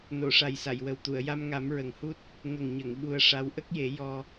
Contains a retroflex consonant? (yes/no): yes